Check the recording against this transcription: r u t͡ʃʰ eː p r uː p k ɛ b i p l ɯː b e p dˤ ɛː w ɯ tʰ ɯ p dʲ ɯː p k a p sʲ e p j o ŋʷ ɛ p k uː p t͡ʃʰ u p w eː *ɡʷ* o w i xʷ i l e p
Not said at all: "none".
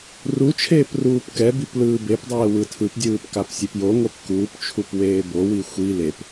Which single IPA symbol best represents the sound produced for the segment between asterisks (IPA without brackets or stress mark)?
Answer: b